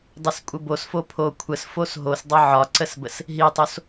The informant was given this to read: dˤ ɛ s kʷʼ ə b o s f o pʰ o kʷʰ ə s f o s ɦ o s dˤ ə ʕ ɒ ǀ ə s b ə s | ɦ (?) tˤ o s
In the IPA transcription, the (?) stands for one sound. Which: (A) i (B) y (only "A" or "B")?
A